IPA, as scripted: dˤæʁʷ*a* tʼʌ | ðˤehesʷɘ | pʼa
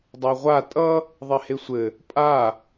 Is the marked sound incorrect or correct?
correct